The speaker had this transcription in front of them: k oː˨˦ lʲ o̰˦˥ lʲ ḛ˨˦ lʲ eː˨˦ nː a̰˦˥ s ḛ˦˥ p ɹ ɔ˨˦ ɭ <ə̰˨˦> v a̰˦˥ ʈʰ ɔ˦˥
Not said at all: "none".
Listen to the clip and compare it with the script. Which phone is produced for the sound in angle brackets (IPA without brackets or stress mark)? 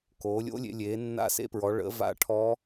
ə̰˨˦